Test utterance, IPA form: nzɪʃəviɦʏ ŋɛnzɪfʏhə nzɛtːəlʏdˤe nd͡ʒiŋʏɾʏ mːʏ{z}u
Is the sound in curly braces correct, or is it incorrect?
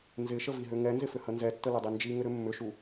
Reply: incorrect